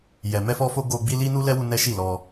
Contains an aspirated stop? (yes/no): no